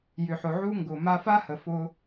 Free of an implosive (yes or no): yes